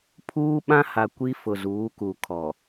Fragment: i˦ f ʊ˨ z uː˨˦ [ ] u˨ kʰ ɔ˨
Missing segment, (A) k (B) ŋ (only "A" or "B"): A